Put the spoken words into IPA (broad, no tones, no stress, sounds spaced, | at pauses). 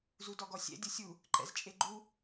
z u d ɔ ɡ ɔ sʲ ɛ̰ dʲ ɤ sʲ u | ǃ ɛ̰ z t͡ʃʼ e ɡ͡ǃ u